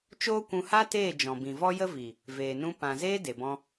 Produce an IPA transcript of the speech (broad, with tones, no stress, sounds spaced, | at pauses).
t͡ʃ oː˦ kʷ ũ˧ h a˦ t eː˦˨ d͡ʒ ɔ̃˨ b ĩ˨ v ɔ˦ j ə˦ v i˨ | v eː˨ n ũ˧ p ã˨ z eː˦ d e˨ b ɔ̃˧